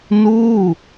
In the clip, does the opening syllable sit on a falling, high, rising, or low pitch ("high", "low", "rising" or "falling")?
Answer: falling